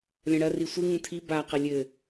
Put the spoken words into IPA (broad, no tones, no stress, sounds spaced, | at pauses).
lʲ ɐ̃ ɽ ɐ r i sʷ ɨ ŋ ũ tʰ i b a q ɐ lʲ ɘ